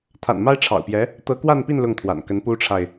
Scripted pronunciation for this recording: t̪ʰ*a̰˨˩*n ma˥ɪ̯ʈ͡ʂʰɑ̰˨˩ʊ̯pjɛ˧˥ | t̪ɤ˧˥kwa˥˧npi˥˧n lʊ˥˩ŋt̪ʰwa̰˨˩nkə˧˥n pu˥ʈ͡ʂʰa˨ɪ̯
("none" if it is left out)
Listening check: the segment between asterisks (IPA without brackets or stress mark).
a̰˨˩